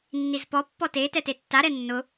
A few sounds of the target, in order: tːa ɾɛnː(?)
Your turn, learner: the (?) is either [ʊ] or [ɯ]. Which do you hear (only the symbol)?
ʊ